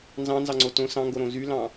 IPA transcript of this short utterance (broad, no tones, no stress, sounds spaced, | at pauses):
n z ɑ̃ n z ɑ ŋ͡ǀ o t õ s ɑ̃ ŋ ɡ o ɾ õ z y l ɑ̃